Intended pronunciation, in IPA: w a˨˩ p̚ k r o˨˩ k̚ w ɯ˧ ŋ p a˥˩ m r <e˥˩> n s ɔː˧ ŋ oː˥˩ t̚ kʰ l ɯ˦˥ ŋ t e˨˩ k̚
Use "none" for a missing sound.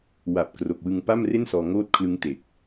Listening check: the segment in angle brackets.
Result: e˥˩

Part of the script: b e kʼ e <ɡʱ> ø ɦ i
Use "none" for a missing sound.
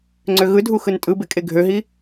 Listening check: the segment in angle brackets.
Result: ɡʱ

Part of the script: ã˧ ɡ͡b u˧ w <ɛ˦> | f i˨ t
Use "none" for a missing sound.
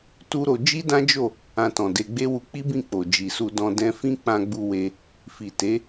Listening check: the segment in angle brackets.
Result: e˦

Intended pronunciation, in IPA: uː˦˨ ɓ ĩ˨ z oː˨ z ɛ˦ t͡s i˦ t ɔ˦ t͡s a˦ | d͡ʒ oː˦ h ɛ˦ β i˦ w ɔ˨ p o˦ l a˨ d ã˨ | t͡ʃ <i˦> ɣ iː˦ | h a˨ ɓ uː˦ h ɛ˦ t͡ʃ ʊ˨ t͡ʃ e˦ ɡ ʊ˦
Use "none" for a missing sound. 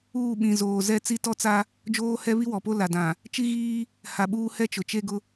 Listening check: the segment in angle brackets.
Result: i˦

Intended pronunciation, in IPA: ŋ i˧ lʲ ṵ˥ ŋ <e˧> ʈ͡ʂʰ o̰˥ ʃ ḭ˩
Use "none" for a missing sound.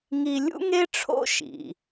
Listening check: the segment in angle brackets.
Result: e˥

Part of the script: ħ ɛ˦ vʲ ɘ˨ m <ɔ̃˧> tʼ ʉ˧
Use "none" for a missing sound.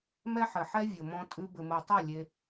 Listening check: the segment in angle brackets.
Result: ɔ̃˧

